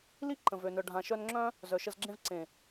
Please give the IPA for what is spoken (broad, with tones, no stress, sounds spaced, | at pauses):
l i˦ ǃ ə̃˨ v ø˨ n œ˨ ɖʱ ã˨ ʃ œ˧ n ŋ͡ǁ œ̃˦ | z œ˨ ʃ ə˧ z ɡ͡ǁ ẽ˦ v ǀ ẽ˨